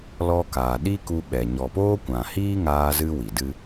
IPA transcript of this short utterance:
lɔ˦ kaː˨ɗi˦ku˧ ɓɛ˨ ɲɔ˨poː˦kʷã˨ hiː˦ŋaː˧zɨ˧ wi˨dɨ˦

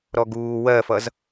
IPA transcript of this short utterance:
ɾɔɡuː wɜfʌz

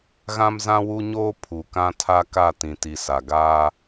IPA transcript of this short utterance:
ɣã˦mzã˦wu˦ɲoː˦ pʰu˨kã˦tʰa˦ ka˦˨tĩ˨ti˨sa˨ ɡaː˦

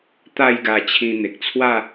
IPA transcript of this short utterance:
t̪a˥˧jɡa˧ t͡ɕʰĩ˧n̪e˨k̚t͡sʰwa˥˧

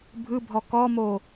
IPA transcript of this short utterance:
bʱɯbʱɔ kɔmo

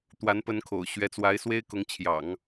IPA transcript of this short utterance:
t̪wa˧˥n pə˧˥nkʰo̰˨˩ʊ̯ɕɥɛ˧˥t͡swa˧˥ɪ̯ swe˥ɪ̯kʊ˧˥ŋt͡ɕʰjɑ̰˨˩˦ŋ

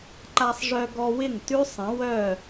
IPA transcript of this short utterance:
ǃa˧sˤʐœ˧ɡɔ˧wɪ˦˨ŋ tʉ˦ sˤə̃˨˦wœ˦˨

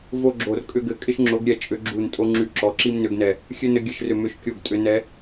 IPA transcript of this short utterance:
vo˦ɡ͡ǁo˧˩rkʼʏ˦ɡɘ˨˦ kʼɪ˦ʃŋ͡ǁo˨˦ɡɾʲɛ˧˩t͡ʃʼʏ˨˦ ɡ͡ǁu˧˩n tʼo˦ ŋ͡ǁy˧˩ǁɔ˨˦ǁi˦m nʏ˨˦ɡnɛ˧˩ | xʲɘ˦nɘ˨˦ ɡʲɘ˧˩ʃrʏ˧˩ mʏ˦ʃ kʲo˧˩ɡtʼʏ˨˦ nɛ˨˦

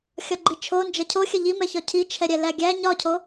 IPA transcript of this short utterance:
xʲɒɡ͡ǃit͡ʃʰo nd͡ʒɐcʰoxʲɐ ʎimɛçɒ cʰit͡ʃʰɛɾʲɛ læɡʲæ ɲɒcʰo

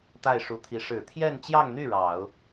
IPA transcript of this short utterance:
t̪a˥˩ɪ̯ʂu˧˥t̪ʰi˧˥ ʂɻ̩˨˩t̪ʰjɛ˥˧nt͡ɕjɑ˥˧ŋn̪y˥˩ ɻɑ˨˩˦ʊ̯

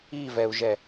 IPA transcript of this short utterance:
ivɛu̯ʒɛ

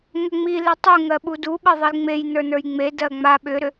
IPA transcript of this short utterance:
ŋʏŋ͡mi letˤu ŋɜɓudu ɓɜðˤilŋ͡mej nə˞nə˞jŋ͡me dɜŋ͡ma ɓʏɾʏ

